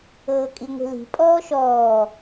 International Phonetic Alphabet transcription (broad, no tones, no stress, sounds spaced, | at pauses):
ɤː kʼ i ŋʷ i̤ l i̤ pʼ ɔː ʃ ɔː